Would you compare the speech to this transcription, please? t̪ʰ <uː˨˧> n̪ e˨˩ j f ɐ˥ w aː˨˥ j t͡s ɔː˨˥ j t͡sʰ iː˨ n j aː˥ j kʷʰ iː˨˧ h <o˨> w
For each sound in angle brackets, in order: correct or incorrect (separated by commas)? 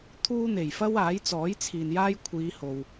incorrect, correct